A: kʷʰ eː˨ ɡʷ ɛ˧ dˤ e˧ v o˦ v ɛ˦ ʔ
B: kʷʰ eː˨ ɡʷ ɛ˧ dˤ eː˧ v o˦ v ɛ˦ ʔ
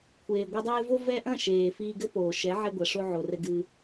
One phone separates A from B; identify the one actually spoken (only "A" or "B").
B